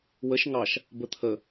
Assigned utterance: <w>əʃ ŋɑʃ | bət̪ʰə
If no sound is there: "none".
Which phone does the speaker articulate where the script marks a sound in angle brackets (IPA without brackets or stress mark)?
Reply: w